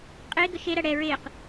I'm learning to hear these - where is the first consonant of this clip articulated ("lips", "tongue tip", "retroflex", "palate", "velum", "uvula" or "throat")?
uvula